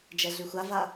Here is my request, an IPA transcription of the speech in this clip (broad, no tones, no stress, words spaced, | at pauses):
d͡ʒɛɮyxʷava